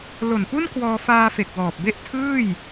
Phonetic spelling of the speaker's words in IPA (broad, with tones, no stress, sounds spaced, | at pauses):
l o˨˩ n p u˥˩ n k w ɔː˧ f aː˧ f e˨˩ k̚ w ɔː˨˩ p̚ b e˥˩ ʔ tʰ ɯː˥˩ j